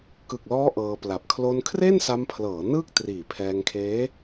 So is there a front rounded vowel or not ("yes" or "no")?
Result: no